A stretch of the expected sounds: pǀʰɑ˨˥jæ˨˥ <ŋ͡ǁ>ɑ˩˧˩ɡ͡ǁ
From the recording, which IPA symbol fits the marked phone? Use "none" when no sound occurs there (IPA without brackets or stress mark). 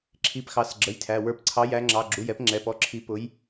ŋ͡ǁ